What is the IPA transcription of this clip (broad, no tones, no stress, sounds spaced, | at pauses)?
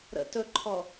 ɾ ə̰ t ɵ ǃʰ ɔ